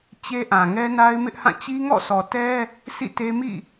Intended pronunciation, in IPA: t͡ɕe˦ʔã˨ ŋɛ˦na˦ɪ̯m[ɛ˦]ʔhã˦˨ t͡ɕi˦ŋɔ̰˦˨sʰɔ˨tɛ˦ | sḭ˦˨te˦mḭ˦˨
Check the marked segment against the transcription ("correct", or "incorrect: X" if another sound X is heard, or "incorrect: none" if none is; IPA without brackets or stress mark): incorrect: ɪ˦